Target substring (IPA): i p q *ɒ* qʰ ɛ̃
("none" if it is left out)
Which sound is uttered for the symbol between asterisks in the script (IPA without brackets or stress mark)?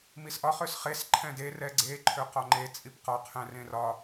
ɒ